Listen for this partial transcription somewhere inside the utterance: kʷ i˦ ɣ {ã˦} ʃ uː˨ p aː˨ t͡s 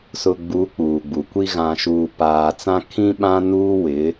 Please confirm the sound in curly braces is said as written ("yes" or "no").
no